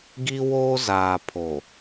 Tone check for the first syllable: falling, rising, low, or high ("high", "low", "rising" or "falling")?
high